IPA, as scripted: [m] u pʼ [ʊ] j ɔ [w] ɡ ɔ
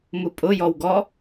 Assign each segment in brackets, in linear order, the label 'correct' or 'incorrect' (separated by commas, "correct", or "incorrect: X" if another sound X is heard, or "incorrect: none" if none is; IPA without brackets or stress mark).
correct, correct, correct